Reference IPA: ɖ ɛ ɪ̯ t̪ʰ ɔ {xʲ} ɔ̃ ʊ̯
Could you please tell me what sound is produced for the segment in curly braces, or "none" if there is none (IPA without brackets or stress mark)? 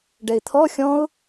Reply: xʲ